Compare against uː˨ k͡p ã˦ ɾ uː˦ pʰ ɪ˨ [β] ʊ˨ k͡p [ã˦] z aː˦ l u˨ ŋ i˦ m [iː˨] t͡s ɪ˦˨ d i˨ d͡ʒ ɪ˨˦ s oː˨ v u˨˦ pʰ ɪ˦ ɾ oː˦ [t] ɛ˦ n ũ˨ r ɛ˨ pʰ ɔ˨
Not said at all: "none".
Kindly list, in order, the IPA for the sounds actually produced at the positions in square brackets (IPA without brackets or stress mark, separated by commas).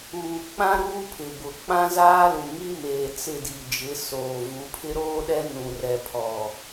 b, ã˦, eː˨, ɗ